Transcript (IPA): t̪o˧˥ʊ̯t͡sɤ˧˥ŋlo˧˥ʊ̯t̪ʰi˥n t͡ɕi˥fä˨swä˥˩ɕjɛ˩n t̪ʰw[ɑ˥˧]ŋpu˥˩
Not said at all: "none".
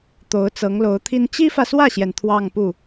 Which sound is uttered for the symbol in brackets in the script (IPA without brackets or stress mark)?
ɑ˥˧